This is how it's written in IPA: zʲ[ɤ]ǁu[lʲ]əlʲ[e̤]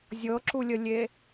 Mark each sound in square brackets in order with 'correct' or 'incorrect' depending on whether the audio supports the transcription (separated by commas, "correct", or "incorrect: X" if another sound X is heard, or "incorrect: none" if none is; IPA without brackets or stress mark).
correct, correct, incorrect: e